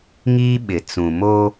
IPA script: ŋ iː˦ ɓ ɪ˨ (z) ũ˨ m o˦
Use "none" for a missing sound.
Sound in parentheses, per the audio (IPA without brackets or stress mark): t͡s